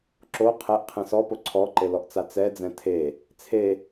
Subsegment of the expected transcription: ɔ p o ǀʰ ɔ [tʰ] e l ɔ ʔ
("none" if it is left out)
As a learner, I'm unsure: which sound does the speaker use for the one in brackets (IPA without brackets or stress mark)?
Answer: ǃ